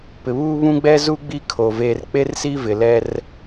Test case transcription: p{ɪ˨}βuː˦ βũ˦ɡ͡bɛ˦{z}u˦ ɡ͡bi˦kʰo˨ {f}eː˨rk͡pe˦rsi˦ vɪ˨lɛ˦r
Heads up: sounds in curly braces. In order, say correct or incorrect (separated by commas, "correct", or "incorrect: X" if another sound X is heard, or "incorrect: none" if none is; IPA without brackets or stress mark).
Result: correct, correct, incorrect: v